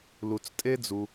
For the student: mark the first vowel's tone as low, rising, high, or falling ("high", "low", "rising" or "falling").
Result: low